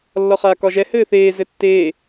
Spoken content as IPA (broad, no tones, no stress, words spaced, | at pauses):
lːɒχaːkɒʒɛ hɘːθeː zɘtːeː